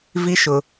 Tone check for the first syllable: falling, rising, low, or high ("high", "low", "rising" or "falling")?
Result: rising